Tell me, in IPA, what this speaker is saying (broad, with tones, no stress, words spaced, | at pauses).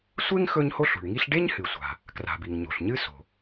sʷe˥ŋ xɵ˥ɲho˥ɬṳ˩ɳŋi˥ɬ ɖe˥ɲhɨ˩sʷa̤˩ | kra̤˩bi˩ŋ ɲo̤˩ɬɲɨ˥ so̤˩